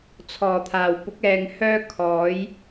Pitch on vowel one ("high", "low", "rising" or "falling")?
low